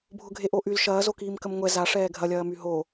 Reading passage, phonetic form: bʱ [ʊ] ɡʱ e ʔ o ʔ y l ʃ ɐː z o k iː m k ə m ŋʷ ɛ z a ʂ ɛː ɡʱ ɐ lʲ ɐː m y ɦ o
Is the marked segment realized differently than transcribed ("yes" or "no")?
no